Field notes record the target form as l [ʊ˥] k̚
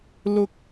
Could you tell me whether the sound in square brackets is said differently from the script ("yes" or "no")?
no